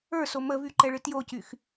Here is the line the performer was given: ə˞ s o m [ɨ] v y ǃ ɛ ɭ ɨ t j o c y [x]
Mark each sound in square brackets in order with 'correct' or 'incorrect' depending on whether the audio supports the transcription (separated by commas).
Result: incorrect, correct